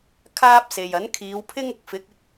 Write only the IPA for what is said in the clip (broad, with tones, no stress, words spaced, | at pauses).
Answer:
kʰaː˥p̚se˨jɐ˨˥n kʰiː˨˧wpʰɪ˥ŋʊ˨˥k̚ fɪ˨˥k̚ɪ˨˥k̚